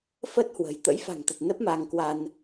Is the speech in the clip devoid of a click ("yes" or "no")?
yes